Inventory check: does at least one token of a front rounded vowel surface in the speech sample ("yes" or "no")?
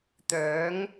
yes